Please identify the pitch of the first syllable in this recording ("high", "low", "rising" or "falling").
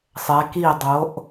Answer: rising